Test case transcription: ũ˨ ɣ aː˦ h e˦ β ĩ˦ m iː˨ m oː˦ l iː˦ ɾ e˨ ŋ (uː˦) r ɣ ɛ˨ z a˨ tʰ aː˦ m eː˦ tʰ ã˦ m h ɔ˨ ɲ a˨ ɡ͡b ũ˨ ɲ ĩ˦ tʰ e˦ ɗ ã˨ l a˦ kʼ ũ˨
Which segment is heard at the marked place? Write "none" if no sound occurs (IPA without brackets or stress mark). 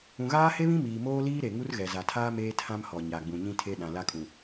u˦